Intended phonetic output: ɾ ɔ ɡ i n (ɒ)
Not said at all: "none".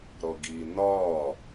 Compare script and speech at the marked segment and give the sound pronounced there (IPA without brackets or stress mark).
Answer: ɒ